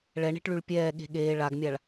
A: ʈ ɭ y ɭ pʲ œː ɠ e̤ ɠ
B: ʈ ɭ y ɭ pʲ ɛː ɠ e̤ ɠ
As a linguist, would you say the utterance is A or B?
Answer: B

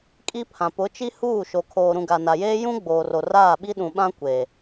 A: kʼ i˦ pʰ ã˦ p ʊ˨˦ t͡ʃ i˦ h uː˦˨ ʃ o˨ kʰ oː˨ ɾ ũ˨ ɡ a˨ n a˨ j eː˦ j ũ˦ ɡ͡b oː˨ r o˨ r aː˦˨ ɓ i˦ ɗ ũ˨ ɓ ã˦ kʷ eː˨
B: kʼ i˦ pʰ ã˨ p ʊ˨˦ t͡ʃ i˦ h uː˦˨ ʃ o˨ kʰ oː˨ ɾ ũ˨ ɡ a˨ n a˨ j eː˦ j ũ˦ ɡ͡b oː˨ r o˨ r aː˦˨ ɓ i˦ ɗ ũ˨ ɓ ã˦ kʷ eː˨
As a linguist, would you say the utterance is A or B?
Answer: B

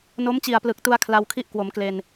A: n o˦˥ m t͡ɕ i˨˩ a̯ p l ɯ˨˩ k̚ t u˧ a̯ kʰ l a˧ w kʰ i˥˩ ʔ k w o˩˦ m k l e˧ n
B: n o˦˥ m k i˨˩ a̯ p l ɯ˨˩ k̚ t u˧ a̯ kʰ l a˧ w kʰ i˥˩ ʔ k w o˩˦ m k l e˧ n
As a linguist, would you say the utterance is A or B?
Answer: A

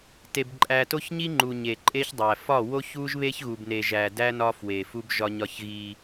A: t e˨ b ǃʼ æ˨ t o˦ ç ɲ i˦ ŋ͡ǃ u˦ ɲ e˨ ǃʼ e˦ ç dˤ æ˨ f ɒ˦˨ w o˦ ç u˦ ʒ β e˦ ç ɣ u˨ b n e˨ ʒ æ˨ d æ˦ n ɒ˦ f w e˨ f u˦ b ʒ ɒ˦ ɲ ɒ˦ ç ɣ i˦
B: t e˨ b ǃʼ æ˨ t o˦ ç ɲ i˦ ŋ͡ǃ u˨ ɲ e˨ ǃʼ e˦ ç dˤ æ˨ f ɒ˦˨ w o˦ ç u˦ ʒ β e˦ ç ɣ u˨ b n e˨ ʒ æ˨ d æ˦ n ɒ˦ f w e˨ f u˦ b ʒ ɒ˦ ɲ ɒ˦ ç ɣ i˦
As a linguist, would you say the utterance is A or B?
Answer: B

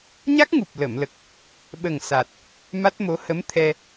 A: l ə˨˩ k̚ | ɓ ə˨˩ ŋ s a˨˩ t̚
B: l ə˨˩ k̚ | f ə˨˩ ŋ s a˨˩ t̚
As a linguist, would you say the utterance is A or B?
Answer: A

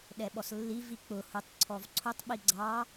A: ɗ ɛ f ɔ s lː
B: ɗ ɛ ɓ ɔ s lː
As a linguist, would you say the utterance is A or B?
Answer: B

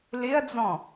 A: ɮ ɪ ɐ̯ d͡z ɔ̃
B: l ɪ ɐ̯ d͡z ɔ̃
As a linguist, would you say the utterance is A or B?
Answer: B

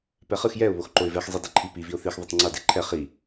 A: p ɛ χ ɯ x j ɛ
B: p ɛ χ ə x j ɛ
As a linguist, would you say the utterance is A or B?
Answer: A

